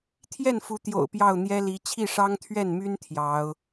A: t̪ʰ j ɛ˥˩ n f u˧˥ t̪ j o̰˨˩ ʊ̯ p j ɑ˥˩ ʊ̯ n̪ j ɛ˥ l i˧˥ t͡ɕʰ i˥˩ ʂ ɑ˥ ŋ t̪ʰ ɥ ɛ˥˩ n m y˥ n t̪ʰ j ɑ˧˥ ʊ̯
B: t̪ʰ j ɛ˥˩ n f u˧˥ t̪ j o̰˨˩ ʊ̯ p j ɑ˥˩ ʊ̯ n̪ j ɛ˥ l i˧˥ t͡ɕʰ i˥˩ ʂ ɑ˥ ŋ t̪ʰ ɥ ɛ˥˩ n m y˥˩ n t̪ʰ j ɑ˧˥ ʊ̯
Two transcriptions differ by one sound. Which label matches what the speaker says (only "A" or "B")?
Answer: A